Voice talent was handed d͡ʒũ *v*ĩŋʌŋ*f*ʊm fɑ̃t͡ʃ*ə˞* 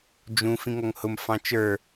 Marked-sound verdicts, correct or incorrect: incorrect: f, incorrect: h, correct

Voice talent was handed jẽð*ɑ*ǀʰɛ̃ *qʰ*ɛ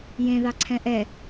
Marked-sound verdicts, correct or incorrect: correct, incorrect: ʔ

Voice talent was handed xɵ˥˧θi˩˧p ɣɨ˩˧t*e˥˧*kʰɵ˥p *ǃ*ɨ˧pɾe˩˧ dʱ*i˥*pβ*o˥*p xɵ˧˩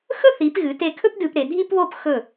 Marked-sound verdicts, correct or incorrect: incorrect: e˧, incorrect: d, correct, correct

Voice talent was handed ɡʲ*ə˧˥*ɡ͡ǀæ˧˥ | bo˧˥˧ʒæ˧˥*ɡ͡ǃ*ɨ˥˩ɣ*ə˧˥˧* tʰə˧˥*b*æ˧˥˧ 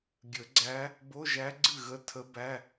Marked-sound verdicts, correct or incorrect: incorrect: ə˨˩˦, incorrect: ɡ͡ǀ, correct, correct

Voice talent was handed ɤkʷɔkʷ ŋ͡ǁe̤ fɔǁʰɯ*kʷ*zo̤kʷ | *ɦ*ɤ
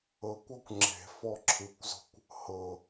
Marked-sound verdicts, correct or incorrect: correct, incorrect: h

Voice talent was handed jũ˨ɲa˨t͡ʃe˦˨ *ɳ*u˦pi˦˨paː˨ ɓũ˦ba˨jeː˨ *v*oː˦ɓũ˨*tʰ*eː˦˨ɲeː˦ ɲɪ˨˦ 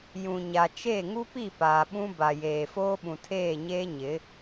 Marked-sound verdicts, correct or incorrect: incorrect: ŋ, incorrect: f, correct

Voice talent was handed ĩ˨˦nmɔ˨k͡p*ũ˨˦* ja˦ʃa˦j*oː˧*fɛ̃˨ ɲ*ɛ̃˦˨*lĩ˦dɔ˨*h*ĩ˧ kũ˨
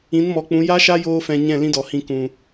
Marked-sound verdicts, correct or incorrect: correct, correct, correct, correct

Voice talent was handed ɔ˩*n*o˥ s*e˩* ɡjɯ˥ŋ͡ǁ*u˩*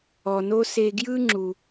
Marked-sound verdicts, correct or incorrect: correct, incorrect: e˧, correct

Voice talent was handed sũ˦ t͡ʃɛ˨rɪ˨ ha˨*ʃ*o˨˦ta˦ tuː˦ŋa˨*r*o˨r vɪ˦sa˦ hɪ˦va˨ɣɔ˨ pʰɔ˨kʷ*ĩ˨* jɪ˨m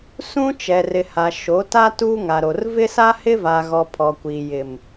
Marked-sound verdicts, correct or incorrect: correct, incorrect: ɾ, incorrect: i˨

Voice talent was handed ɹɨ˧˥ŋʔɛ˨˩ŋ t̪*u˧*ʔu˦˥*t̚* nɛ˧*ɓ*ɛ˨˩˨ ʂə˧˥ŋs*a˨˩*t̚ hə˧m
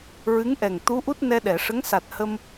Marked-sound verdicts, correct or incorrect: incorrect: u˧˥, correct, incorrect: ɗ, correct

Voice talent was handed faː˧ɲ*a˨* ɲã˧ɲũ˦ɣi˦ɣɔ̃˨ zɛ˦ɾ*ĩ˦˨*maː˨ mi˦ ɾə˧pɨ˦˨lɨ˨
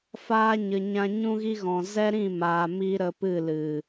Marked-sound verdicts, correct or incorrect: incorrect: ə˨, correct

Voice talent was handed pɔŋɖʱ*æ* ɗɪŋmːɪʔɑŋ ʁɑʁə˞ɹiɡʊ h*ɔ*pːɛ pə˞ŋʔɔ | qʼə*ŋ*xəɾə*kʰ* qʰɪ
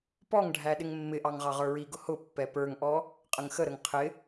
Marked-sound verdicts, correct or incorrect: correct, incorrect: ʊ, correct, incorrect: ŋ

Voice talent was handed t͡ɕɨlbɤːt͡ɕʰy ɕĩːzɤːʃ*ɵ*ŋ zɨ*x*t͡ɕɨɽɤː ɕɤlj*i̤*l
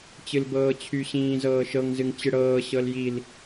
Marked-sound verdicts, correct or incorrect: incorrect: ɤ, incorrect: ŋ, incorrect: i

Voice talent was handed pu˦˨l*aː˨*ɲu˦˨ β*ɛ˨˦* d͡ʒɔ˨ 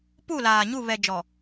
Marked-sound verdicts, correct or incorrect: correct, incorrect: ɛ˨

